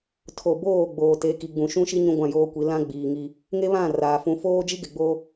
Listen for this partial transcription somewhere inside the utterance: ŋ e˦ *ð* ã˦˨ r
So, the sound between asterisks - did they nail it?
no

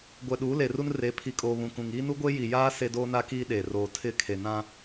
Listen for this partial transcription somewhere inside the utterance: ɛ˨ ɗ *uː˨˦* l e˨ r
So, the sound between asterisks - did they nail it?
yes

